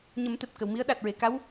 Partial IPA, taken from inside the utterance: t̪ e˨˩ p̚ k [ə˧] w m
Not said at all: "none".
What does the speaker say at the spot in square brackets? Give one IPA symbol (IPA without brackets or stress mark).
ə˨˩˨